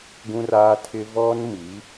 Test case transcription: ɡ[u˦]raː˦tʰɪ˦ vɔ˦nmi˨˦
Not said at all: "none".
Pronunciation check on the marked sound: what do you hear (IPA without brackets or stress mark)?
ũ˦